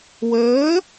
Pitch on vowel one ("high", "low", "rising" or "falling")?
rising